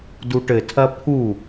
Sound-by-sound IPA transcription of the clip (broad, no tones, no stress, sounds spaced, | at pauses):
d u ʈ ɘ tʰ ɐ pʰ u